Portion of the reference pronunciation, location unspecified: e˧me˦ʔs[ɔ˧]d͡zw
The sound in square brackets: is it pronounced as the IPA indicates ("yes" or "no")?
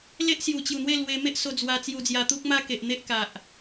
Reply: no